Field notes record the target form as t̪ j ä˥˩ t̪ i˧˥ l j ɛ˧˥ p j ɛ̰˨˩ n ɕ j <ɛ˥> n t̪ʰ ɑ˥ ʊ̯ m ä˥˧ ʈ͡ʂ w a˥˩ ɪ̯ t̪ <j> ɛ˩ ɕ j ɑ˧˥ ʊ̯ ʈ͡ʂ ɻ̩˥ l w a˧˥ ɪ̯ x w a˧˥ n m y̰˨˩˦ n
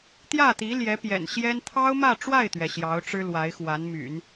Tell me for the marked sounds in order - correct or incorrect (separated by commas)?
correct, incorrect